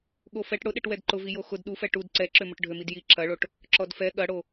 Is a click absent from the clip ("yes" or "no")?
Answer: no